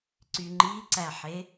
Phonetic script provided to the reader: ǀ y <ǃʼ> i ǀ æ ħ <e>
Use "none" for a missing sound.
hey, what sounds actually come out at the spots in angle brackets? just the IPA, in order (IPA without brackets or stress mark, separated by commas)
ŋ͡ǃ, e